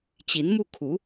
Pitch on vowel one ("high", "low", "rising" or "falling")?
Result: rising